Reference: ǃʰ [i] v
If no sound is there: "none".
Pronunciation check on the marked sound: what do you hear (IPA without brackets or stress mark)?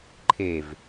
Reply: e